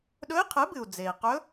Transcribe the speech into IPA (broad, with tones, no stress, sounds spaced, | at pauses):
ɗ ɵ˧˥ i̯ qʰ ɨ˩˥ b ɨ˩ u̯ d͡z e˩ i̯ q ɵ˧˥